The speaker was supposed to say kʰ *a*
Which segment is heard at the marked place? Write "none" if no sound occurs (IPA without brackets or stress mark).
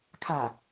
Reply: a